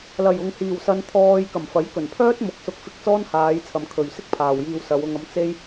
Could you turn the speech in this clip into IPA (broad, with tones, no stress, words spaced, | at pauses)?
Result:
lɐ˨˩jʊ˨ŋhiː˨˩w sɐ˧nt̪ʰɔː˧j kɐ˨˩mfɐ˨˥j kɵ˨˩n pʰœː˥t̚mʊ˨k̚sʊ˧k̚ fɪ˧k̚t͡sɔː˥nhaː˨˧jt͡sʰɐ˨m kʰɵ˨ɥsɪ˥k̚pʰaː˨w jiː˧wsɐ˨˧wʊ˧ŋ ɐ˧m t͡se˥j